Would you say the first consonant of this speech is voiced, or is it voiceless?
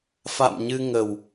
voiceless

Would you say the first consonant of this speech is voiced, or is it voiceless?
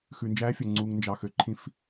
voiceless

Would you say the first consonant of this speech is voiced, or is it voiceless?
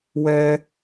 voiced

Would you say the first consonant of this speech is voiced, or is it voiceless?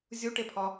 voiced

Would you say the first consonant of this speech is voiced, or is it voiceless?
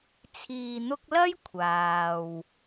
voiceless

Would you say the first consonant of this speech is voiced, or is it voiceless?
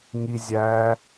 voiced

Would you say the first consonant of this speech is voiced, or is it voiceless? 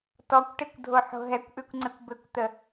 voiceless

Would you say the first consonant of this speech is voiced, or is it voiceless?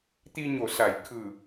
voiceless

